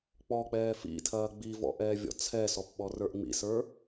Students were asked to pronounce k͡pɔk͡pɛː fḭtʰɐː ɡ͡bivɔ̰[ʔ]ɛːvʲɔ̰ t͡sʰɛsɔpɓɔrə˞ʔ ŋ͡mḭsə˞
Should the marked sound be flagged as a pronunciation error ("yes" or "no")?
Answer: no